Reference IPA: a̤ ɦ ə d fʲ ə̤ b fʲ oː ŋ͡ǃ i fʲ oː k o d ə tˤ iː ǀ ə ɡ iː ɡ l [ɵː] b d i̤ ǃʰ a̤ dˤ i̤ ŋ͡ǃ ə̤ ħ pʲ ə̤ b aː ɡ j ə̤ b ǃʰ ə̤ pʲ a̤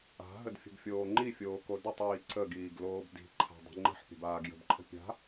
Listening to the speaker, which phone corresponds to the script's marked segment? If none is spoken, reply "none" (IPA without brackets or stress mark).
oː